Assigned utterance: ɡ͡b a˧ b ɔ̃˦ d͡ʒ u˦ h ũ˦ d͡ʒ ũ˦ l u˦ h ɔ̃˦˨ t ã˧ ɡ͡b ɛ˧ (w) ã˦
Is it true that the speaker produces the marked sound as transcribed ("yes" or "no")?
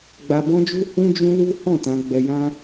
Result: no